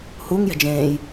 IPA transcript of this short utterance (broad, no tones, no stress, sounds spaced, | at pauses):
h u ŋ j ɛ̤ d͡ʒ ẽː j